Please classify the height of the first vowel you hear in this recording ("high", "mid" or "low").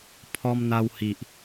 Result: mid